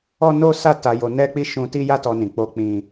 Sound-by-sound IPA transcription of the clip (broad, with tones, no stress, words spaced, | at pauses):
ɔ˦no˦sa˦ ta˧jo˧ nɛ˦k͡pi˦ ʃũ˦ ti˦ja˦tɔ˧ nĩ˧k͡po˦k͡pĩ˦